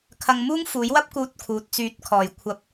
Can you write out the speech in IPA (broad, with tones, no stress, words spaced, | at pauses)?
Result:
kʰɐ˧ŋmuː˥ŋfuː˨˥jwɐ˥p̚ kuː˧t̚kʰuː˨t̚t͡syː˨˥t̚ kʰɔː˨˩jkʷʰɐ˨˥p̚